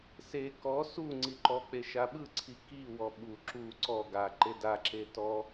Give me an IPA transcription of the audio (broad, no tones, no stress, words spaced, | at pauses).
se kɔ su ŋ͡ǀiǃɔk͡pe ʃaɓɯǀʰi kiwɔ ɓu ǁu ǀɔ ɡaǃe daǁe tɔ